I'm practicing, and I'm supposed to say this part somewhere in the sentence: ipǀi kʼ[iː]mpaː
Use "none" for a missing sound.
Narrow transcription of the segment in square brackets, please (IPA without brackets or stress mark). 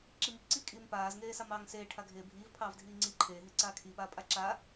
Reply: iː